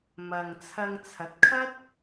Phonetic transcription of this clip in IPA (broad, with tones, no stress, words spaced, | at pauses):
mɐ˨ŋt͡sʰɐ˧ŋt͡sʰɐ˨˥t̚ kʰɐ˥t̚